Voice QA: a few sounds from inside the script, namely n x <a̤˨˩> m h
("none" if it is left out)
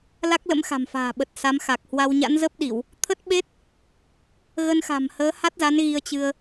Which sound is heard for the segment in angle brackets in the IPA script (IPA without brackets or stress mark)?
a̤˨˩